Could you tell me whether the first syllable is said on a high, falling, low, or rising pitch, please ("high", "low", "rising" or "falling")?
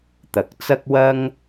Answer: rising